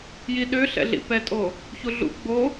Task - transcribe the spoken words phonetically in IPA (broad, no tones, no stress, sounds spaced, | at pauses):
j i ɗ ø ɬ ɛ̰ ɮ ḭ p ɛ tʼ o | ç u ɮ ṵ ɡ͡b o